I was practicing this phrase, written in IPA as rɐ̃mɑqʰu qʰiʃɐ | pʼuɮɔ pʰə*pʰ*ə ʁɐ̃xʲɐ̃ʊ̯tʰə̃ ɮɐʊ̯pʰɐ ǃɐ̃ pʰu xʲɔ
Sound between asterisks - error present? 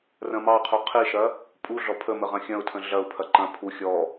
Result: yes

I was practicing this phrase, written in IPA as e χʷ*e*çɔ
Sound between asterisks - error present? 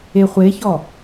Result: no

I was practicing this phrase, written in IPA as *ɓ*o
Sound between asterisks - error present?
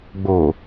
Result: yes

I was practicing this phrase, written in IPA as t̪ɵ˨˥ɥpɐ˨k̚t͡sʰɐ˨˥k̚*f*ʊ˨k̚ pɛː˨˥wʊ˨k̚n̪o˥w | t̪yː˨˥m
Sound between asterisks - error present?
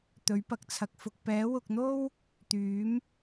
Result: no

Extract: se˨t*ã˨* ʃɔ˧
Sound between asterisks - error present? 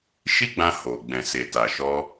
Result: yes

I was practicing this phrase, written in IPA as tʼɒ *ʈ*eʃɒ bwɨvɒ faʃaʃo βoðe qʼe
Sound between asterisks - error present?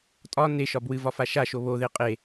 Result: yes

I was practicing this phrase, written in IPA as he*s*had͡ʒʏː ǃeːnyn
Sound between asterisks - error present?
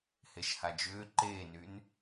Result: yes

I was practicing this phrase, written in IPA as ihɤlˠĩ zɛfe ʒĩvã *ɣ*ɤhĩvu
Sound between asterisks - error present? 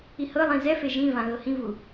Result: no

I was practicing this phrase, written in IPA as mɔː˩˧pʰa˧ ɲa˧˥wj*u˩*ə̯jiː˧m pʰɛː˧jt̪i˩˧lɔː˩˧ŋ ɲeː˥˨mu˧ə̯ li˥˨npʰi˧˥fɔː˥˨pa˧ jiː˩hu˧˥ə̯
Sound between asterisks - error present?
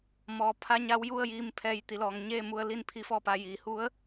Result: yes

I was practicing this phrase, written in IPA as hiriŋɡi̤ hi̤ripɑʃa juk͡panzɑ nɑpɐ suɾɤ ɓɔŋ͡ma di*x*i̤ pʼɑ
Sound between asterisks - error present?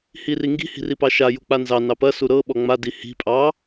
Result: yes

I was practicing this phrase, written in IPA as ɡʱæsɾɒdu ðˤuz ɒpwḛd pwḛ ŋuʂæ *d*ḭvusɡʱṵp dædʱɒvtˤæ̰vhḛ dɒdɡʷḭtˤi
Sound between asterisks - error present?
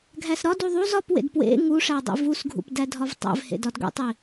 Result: yes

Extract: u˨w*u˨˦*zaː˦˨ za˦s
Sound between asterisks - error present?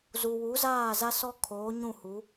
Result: no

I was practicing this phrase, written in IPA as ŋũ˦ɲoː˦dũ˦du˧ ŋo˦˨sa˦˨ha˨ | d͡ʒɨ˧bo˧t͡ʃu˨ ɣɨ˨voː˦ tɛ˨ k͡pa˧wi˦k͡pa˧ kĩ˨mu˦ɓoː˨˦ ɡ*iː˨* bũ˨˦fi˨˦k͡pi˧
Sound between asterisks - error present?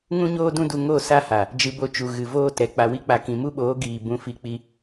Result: no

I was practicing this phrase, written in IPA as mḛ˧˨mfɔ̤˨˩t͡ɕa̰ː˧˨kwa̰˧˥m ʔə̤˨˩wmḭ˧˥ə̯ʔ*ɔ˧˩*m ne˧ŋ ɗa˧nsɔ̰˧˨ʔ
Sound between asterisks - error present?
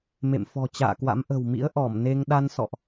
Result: no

